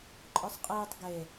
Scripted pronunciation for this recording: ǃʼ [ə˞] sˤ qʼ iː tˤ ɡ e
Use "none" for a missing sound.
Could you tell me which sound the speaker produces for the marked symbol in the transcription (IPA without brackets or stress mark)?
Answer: ə˞